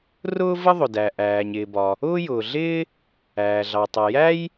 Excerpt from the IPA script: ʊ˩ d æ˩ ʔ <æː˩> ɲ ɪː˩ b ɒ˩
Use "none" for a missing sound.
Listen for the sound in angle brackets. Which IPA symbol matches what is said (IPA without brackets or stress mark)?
æː˩